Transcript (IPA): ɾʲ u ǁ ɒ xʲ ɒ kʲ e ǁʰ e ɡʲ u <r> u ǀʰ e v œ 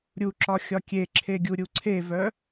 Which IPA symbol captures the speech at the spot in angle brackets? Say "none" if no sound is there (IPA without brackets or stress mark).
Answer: ɾʲ